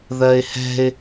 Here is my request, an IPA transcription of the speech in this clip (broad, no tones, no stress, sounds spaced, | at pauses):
ð ɜ ɪ̯ h ɛ̤ ɪ̯